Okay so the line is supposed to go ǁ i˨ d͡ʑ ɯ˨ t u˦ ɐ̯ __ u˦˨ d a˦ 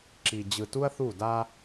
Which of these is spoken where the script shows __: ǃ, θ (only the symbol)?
θ